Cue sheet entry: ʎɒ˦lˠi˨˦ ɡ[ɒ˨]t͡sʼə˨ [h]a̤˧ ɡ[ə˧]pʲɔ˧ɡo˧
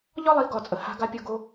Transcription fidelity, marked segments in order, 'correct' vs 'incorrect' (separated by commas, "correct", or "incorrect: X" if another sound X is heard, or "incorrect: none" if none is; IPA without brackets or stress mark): correct, correct, incorrect: a˧